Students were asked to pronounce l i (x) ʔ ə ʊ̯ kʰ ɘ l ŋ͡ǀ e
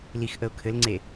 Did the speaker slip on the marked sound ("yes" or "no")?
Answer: no